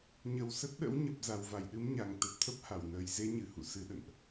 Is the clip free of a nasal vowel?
yes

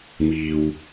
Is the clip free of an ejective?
yes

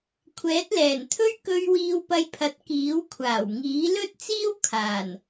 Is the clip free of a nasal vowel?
yes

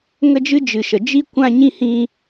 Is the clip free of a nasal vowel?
no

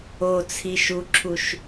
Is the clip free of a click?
no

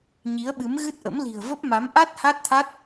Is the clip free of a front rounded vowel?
yes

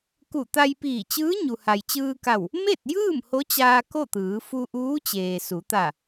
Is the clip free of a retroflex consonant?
yes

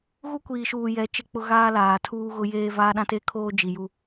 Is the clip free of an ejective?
yes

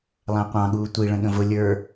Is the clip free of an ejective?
yes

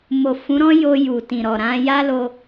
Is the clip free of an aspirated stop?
yes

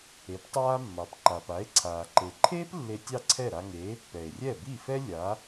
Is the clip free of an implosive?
yes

